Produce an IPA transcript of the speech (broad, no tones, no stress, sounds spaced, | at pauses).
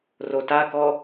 r o t a k ɔ